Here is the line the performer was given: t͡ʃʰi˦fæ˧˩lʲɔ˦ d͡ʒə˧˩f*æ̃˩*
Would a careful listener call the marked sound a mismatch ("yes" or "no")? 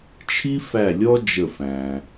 no